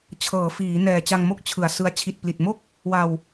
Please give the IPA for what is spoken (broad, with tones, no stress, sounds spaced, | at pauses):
t͡ɕʰ ɤː˩˦ f iː˩˦ n ɛː˨˩ t͡ɕ a˧ ŋ m o˥˩ k̚ t͡ɕʰ ɯ˨˩ a̯ s ɯ˧ a̯ t͡ɕʰ i˨˩ t̚ p l i˨˩ t̚ m o˥˩ k̚ | w a˧ w